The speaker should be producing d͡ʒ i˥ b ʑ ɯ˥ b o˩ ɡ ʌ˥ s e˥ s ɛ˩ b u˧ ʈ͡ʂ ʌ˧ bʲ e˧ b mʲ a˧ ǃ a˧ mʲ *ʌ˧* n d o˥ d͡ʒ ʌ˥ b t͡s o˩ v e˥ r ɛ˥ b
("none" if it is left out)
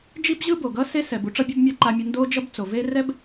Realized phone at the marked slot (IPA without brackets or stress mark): ʌ˧